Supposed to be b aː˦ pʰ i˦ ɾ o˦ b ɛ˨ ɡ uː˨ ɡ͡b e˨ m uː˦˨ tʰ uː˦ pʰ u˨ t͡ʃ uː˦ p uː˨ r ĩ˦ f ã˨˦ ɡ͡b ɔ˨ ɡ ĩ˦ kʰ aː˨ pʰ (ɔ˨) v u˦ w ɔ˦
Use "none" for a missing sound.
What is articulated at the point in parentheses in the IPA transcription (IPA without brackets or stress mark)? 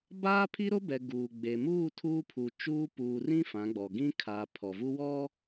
ɔ˨